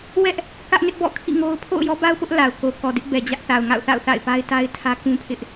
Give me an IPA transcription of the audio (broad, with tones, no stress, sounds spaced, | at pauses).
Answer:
w ɛ˦ ʔ | k ä˦ ʔ n ɪ˦ ʔ b ɔ̰˦˨ kʰ ḭ˦˨ ŋ o˦ ʊ̯ pʰ o̰˦˨ ʊ̯ j ɔ˦ b a˦ ʊ̯ p ʊ˦ ʔ l a˨ ʊ̯ k o˨ k ɔ˨ d ɪ˦ ʔ b ɛ˨ d͡ʑ ä˦ ʔ θ a˨ ʊ̯ ŋ a̰˦˨ ʊ̯ θ a̰˦˨ ʊ̯ θ a̰˦˨ ɪ̯ p a˦ ɪ̯ t a˦ ɪ̯ tʰ ä˦ k ũ˦ pʰ ɪ˦ ʔ